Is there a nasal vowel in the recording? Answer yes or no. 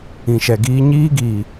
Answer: yes